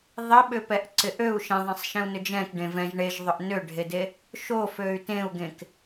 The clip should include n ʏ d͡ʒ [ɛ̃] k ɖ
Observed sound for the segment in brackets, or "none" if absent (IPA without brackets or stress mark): ɛ̃